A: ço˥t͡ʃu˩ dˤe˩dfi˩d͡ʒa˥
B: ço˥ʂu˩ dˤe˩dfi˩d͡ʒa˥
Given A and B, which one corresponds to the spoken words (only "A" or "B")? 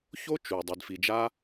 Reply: A